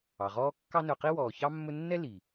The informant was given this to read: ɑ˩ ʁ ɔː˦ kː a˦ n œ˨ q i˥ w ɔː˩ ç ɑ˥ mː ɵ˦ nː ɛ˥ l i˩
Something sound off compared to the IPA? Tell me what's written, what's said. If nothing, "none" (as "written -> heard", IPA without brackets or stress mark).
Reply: a˦ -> ɑ˦